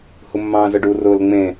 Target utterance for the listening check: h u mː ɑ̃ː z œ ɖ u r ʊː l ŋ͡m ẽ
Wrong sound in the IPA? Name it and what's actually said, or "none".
none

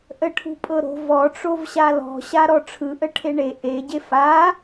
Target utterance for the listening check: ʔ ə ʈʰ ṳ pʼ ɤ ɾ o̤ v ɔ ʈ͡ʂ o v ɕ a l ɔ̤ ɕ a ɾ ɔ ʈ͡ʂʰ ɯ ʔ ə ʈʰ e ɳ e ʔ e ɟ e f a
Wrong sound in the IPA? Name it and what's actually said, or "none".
none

